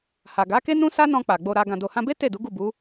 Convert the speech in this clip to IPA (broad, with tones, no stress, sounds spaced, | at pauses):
h a˨ ɡ a˨˦ k e˦ n ũ˦ s a˦ n ɔ̃˧ k͡p a˨ ɡ͡b o˧ ɾ a˧ ɡ ã˨ d o˨ h ã˧ b e˦ t e˦˨ d u˨˦ ɡ u˦˨ b u˨˦